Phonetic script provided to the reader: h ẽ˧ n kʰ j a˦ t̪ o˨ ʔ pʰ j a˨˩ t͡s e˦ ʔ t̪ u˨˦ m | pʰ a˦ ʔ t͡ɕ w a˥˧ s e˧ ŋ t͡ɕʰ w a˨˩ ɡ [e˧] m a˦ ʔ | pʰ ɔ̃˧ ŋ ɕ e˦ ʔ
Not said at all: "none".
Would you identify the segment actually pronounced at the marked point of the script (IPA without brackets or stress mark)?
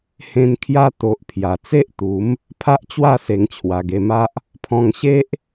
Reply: e˧